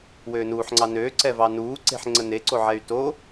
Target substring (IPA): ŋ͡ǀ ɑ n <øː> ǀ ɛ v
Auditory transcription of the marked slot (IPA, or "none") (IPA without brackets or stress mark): øː